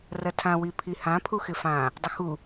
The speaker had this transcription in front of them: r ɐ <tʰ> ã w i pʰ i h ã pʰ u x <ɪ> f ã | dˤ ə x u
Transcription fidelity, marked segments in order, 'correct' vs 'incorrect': correct, correct

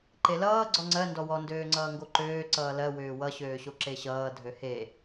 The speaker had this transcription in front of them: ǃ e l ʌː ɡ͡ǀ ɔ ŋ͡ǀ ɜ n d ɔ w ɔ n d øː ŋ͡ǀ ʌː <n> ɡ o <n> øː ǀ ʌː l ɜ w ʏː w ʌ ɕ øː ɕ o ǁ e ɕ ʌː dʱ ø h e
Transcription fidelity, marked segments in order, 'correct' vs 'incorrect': incorrect, incorrect

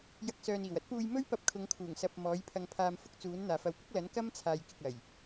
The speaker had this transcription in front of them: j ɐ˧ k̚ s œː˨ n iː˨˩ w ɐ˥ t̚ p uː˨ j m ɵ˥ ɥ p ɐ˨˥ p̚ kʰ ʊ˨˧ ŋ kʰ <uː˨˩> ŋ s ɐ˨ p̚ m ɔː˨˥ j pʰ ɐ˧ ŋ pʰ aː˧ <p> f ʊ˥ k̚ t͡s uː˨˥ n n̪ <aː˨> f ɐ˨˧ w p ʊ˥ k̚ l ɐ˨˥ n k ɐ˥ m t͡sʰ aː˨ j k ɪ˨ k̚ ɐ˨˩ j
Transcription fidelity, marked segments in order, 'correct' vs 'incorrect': correct, incorrect, correct

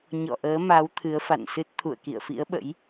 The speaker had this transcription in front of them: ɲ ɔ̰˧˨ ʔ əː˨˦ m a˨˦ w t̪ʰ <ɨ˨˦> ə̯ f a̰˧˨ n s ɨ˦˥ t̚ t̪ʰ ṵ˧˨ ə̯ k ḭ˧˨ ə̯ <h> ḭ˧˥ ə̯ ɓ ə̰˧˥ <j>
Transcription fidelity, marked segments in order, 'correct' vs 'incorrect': correct, incorrect, correct

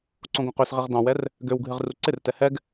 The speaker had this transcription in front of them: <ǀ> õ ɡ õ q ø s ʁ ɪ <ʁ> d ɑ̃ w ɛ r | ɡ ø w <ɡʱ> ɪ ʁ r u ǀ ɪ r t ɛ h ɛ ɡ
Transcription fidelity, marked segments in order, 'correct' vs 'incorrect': correct, correct, correct

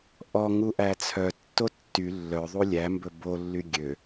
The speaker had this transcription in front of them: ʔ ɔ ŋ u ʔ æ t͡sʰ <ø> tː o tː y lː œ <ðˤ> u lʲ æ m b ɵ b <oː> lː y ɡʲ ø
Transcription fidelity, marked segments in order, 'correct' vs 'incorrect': incorrect, correct, incorrect

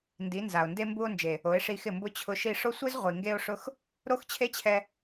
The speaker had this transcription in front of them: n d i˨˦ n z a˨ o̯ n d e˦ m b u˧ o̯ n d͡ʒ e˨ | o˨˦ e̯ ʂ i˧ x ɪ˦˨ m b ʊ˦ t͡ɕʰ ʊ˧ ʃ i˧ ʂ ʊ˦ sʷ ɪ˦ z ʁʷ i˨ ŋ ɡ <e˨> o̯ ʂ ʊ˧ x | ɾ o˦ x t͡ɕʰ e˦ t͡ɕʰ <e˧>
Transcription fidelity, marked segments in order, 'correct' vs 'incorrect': incorrect, incorrect

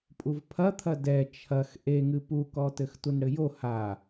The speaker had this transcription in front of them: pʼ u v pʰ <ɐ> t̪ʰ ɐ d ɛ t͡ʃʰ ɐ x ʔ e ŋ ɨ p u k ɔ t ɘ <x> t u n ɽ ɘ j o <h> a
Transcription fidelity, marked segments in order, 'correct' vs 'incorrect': correct, correct, correct

